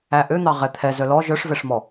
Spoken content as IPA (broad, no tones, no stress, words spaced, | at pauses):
æʔøn̪ɑ ʁɛt̪ʰɛ zœlɔ ʒœʂvɛʂmɔ